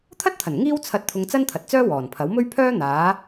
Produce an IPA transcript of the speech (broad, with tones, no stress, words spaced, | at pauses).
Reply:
t̪ʰɐ˥t̚t̪ʰɐ˨˩n ŋiː˥wt͡sʰɐ˧t̚ t̪ʰʊ˧ŋt͡sɐ˥nt̪ʰɐ˨t̚t͡sœː˥ wɔː˨˩npʰɐ˨˥w mɵ˥ɥpʰœː˥ n̪aː˨˧